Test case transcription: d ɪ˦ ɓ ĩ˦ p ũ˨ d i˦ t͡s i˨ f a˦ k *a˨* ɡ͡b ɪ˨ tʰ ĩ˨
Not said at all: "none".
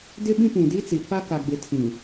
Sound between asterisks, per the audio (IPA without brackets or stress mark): a˨